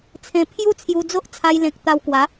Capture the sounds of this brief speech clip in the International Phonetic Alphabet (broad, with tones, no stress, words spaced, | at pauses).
t͡sʰẽ˧ pʰju˦t͡sʰju˧d͡zo˦ʔ t͡sʰa˧jlẽ˨k̚ t̪a˧wkwa˨˦